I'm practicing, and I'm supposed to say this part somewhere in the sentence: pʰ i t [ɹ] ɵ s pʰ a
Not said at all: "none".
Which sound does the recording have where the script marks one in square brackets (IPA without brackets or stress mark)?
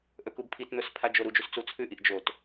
n̪